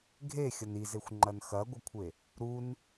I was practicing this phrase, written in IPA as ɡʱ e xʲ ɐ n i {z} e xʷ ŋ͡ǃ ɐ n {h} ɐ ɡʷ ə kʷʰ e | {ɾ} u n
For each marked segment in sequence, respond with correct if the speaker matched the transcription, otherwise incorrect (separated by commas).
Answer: correct, incorrect, correct